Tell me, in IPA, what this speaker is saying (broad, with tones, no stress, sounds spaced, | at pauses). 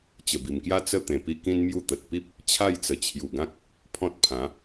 t͡ɕ ə˨˩ b i˨˩ m k j a˥˧ t͡s ə˥˧ t̪ ẽ˨˩ p i˦ k ĩ˦ n m j u˥˧ t̪ ə˨ t̚ p i˦ p̚ | t͡ɕʰ a˥˧ j t͡s ə˨˩ t͡ɕʰ j u˨˩ ɡ ã˦ k̚ | pʰ ɔ̃˦ t̚ pʰ ã˨˦